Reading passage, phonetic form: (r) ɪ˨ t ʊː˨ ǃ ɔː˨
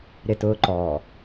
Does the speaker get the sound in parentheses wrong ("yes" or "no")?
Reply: yes